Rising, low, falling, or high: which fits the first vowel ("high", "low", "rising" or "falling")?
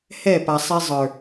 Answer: falling